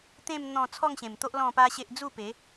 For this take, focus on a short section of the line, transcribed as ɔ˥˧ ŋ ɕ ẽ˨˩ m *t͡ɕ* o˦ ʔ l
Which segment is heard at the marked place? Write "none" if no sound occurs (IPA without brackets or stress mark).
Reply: t̪